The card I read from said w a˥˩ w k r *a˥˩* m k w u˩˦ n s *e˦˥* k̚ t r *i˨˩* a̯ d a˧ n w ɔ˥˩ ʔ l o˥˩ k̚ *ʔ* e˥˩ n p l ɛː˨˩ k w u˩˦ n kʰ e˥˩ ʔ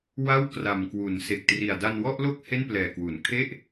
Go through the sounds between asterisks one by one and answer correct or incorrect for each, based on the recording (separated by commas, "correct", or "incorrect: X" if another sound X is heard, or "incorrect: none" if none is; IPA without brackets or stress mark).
incorrect: a˨˩, incorrect: e˨˩, correct, incorrect: h